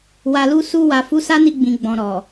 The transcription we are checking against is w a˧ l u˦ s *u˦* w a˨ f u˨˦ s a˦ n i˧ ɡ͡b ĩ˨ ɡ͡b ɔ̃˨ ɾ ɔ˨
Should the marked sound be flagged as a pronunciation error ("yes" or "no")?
yes